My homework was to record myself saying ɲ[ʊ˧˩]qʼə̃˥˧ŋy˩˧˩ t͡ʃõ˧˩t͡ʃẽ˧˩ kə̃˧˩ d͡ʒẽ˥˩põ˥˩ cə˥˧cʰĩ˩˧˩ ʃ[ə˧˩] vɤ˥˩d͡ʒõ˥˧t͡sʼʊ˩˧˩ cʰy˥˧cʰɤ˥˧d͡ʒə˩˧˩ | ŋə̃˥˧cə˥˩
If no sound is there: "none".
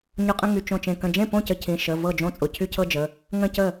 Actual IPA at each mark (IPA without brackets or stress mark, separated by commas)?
ʊ˧˩, ə˩˧˩